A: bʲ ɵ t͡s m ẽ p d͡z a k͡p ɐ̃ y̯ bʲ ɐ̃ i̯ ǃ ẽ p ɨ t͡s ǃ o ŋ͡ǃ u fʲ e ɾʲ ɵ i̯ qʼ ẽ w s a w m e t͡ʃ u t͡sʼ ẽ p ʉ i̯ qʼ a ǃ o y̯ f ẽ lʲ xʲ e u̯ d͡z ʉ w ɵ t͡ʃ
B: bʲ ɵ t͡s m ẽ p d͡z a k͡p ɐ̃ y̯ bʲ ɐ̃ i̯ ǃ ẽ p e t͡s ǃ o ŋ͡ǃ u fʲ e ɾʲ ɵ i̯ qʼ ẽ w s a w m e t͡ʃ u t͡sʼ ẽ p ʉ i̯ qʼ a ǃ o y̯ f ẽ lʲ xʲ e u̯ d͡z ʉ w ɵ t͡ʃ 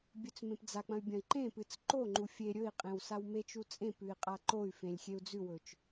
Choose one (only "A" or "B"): A